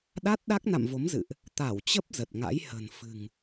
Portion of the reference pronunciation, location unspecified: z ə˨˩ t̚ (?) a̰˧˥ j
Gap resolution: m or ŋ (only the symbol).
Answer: ŋ